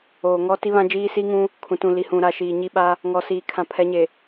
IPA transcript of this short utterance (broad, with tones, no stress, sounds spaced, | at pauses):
oː˨ ŋ ɔ˦ t i˦ β ã˦ d͡ʒ iː˦ s i˦ ŋ ũ˦ | kʰ ũ˨ t ũ˨ l i˨ h ũ˨ ɾ a˦˨ ʃ iː˨ ɲ i˦ ɓ a˦ | ŋ ɔ˨ s iː˨ kʰ ã˨ pʰ ɛ˨˦ ɲ e˨